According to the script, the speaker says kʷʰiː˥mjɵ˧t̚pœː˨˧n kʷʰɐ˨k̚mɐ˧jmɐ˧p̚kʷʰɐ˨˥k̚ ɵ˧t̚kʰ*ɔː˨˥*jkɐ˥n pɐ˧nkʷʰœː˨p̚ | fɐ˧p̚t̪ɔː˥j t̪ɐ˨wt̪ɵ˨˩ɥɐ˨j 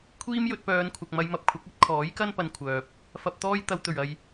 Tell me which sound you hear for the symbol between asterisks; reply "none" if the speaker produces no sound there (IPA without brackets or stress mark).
ɔː˨˥